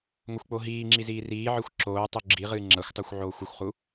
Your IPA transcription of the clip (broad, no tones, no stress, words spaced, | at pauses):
ŋʷɐxʷk͡poɦiːŋ͡ǁi ziːriːʕɨxʷ ǁoː tˤuɡ͡ǁiʁɨː ŋ͡ǁɐxʷtˤuxʷ ʕoːxʷɨxʷχu